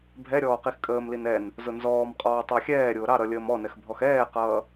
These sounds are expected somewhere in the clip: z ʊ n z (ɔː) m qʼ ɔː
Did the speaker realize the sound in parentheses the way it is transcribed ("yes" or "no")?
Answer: yes